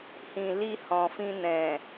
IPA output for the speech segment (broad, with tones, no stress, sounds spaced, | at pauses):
h ĩ˨ l i˧ h ɔ̃˨ f ĩ˧ n ɛ̃˨